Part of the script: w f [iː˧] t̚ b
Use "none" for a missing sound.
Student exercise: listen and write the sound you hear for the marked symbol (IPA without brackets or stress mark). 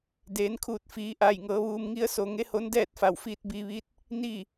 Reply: iː˧